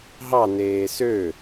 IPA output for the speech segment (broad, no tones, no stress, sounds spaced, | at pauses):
ɦ ɑ n eː s ø